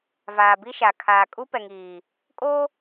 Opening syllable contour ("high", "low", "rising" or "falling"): low